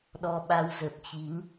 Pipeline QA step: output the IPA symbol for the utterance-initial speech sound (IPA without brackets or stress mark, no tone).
ɗ